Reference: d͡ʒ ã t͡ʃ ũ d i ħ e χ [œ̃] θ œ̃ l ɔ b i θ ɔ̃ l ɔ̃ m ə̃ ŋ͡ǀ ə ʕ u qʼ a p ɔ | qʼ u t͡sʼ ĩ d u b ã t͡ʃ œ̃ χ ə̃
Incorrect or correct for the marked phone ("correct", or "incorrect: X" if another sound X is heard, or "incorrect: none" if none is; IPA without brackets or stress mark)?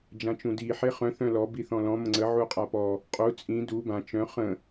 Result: correct